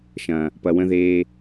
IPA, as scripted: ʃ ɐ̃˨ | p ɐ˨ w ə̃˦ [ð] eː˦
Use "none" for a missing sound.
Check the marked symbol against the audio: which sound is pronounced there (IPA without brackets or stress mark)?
ð